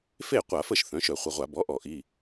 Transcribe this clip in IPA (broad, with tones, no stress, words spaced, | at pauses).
fe˥˩ qʷa˧˩˧fə˥˩ʃ θœ̃˩˥ʃœ˧˩˧χʷə˩˧˩ʁʷa˧˩˧ bɔ˩˥ ʔɔ˧˩˧ʔi˩˧˩